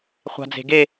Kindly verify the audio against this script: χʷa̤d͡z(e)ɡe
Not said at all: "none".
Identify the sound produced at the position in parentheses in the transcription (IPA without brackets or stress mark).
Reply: e̤